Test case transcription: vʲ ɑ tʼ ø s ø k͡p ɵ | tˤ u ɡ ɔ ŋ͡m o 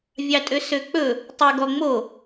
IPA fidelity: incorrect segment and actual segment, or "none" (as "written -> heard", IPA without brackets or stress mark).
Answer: none